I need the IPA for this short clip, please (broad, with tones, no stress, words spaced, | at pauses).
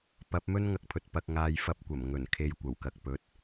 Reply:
pɐ˨˥p̚mɵ˥n ŋɐ˧k̚pʰɵ˨t̚ pɐ˧k̚ŋaː˧j fɐ˧p̚kʷɐ˨˩mŋɵ˨˩n kʰe˨j kʷɐ˨˩wkɐ˨k̚ pɵ˨˥t̚